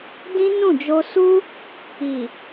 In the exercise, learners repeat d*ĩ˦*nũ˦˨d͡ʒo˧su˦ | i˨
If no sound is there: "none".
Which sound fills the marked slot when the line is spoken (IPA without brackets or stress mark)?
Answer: ĩ˦